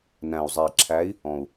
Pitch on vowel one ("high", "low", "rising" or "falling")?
low